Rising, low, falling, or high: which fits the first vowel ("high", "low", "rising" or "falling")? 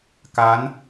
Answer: rising